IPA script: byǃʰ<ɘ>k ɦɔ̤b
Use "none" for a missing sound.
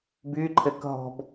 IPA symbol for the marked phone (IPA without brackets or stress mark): ɘ